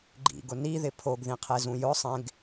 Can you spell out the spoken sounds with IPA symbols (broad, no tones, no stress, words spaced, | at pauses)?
ɡ͡ǃḭɡʊ niðɪ pʰoɡðĩqʰezũ jʊsˤẽɡ